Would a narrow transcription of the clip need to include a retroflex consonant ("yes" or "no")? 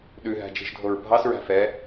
no